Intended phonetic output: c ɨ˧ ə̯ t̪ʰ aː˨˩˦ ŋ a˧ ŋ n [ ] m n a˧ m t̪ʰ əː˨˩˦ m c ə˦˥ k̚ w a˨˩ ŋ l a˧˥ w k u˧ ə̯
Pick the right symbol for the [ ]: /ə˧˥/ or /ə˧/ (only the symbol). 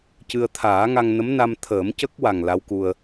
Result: ə˧˥